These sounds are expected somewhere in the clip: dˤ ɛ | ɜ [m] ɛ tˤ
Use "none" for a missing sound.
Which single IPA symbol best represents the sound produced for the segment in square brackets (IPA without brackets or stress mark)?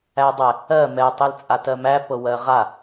m